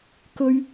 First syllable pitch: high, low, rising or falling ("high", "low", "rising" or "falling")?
high